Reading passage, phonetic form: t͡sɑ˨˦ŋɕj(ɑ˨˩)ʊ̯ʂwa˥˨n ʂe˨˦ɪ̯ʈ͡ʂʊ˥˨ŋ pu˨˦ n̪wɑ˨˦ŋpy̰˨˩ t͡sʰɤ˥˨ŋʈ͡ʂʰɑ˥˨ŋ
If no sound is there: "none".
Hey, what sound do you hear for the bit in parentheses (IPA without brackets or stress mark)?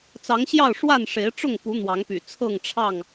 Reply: ɑ˥˨